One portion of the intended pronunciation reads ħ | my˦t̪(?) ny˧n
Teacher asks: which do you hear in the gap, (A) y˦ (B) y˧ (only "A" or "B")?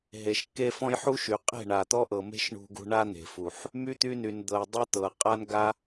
A